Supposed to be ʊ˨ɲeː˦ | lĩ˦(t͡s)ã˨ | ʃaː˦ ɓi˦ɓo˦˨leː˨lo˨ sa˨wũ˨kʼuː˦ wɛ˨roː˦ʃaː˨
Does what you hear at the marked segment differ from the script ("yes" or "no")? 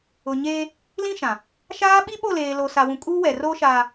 yes